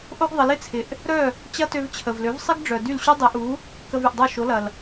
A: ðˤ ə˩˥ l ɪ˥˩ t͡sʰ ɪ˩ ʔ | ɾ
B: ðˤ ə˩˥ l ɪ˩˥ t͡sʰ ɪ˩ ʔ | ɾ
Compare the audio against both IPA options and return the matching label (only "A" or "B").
A